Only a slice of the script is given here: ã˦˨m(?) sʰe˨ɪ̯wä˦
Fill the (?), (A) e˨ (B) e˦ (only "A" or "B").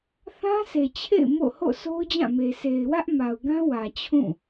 A